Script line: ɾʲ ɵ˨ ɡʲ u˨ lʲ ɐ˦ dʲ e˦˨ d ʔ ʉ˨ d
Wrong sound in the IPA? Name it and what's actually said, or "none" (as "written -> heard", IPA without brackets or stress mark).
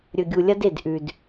dʲ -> d